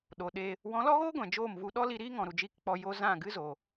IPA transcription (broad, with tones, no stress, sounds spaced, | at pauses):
ɗ o˨ ɗ e˧ | w ɔ̃˨˦ l ɔ˦ ɣ oː˦ ɡʷ ɛ̃˨ d͡ʒ oː˦˨ m v u˧ ɗ ɔ˦ l i˧ ɾ iː˦ ŋ ɔ̃˨ ɾ u˨ d͡ʒ i˦˨ k k͡p ɔ˧ j o˧ z ã˦˨ ɡ ɨ˦ z o˨